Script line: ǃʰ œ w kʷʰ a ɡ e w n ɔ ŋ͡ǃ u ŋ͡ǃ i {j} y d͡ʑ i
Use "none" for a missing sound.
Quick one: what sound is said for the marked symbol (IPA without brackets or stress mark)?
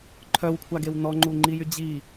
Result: j